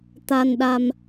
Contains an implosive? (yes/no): yes